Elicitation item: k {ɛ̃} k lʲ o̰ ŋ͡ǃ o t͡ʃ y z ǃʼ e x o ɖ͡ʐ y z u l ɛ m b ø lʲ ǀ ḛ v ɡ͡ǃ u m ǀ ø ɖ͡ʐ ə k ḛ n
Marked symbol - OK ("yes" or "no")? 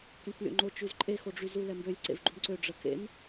yes